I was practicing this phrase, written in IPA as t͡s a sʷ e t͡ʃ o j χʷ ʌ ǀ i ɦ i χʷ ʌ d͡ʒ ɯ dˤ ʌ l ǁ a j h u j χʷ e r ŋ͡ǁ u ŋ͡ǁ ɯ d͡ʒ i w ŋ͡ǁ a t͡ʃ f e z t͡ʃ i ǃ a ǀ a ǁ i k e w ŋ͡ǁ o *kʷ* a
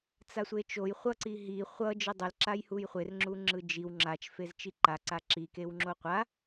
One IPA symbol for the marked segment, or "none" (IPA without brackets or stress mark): qʷ